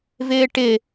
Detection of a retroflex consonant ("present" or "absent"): present